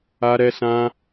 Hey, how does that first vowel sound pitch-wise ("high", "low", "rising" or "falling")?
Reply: high